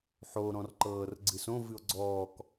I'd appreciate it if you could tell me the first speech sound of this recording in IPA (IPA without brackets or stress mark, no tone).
ħ